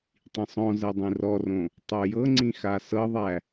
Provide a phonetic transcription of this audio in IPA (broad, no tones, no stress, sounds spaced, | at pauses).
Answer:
tˤ ĩ sˤ ɔ̃ z ɛ dˤ ĩ r ɔ r õ | tˤ o j ɤ ŋ͡ǀ ĩ x a s ɤ ðˤ æ